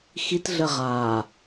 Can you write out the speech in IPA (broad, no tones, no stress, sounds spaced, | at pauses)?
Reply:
x i t ɮ ə ʁ a